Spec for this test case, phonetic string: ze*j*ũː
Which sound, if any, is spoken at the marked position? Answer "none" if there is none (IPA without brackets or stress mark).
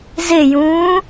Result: j